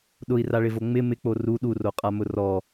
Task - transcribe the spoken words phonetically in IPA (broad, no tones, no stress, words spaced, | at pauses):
ɗʊi̯raɭɪvo ŋ͡mɪ mɪk͡po ru ɗuroqʼamʊ rɔ